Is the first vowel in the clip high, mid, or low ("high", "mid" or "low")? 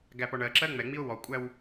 low